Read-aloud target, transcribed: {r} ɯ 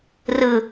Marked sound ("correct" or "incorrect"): correct